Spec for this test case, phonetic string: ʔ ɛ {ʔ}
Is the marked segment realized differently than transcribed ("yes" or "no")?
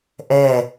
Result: yes